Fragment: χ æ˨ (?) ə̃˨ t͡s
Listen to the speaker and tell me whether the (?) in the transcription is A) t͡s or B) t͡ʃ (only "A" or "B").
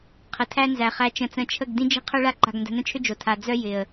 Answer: B